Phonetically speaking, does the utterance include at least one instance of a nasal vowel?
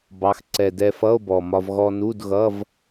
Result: no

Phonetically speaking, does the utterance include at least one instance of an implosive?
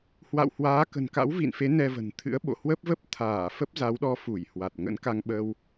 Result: yes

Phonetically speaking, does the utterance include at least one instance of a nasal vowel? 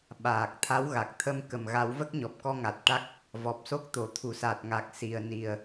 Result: no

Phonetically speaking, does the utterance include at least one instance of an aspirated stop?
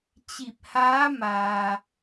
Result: no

